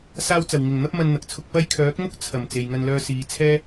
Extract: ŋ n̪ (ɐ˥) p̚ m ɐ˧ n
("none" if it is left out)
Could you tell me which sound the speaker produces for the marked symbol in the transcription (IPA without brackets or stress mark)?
ɐ˥